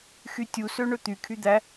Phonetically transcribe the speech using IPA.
x y tʲ u s ø ɳ ɵ t̪ y kʰ y d̪ æ

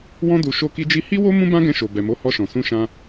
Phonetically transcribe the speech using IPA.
w ɔ̃˧ d u˨ ʃ o˧ k i˧ d͡ʒ i˧ h i˦ w o˦ m ũ˦ b ã˦ ɡ ɛ̃˧ ʃ o˨ b ɛ˨ m o˨˦ h ɔ˧ ʃ ɔ̃˨ s ũ˧ ʃ ã˧

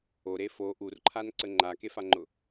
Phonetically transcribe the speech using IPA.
o ɾ e f o ʔ u r ǃʰ a n ǀ ə ŋ͡ǃ a k e f a ŋ͡ǃ ʊ

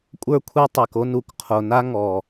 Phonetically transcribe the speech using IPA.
kʷʼ ə˞˦ kʷʰ ɛ˦ tˤ ɛ˨ k o˦ n u˨ k qʰ o˨ n a˦ ŋ ɔ˨

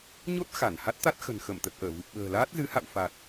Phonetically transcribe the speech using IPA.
ɲ o˦˥ t̚ x a˧˩ n h a˦˥ t̚ t̪ a˦˥ t̚ x ə̤˨˩ n x ə˧˩ m t̪ ə˨˩ t̚ ʔ əː˧˩ v ɨ˨˩ p̚ ɓ ə̤ː˨˩ l aː˦˥ t̚ z ɨ˨˦ h a̰˧˨ w f a˨˩ t̚

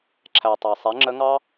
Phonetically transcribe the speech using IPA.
ǁʰ æ˩ tˤ ɑ˩ sˤ ɛ˩˧ ŋ͡ǁ ə˧˥ ŋ ɑ˥

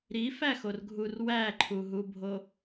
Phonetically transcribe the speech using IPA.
ɾ i f æ x o r ɡʱ u r w æ ǃʰ u ɦ u bʱ o

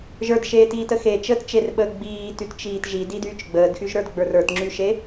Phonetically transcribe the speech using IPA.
ʒ ə˞ d ʃ eː t iː t ə x e t͡ʃ əː t t͡ʃ e r ɓ əː ɡ͡b iː t y t t͡ʃ iː t ʒ i d i d yː t͡ʃ ɡ͡b əː d x y ʒ ɾ ə˞ d ɡ͡b ə˞ r ə˞ t ŋ͡ǁ y ʃ e

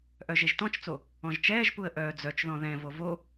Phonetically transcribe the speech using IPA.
ʔ œ ʒ e ʒ t ɔ̃ t͡ʃ t͡s o | ɔ̃ ʒ t͡ʃ ɛː ʒ p u ə̯ ʔ œː d͡z œ t͡ʃ ð ɔ̃ ð ɛ̃ v o v o

